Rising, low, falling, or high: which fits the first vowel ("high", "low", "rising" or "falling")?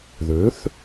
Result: rising